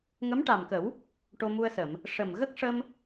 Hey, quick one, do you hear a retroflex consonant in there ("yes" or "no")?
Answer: yes